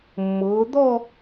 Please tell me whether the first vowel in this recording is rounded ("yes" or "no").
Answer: yes